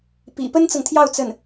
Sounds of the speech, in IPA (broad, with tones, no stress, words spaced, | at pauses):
pḭ˨˩ pə˥nt͡sɤ˨ŋt̪ʰjɑ˥˧ʊ̯ t͡sə˥˩n